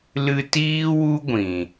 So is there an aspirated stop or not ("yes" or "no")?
no